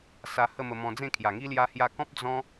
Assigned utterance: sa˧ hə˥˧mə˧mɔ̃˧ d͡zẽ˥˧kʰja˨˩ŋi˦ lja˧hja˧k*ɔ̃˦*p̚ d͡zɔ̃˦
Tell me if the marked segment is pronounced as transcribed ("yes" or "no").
yes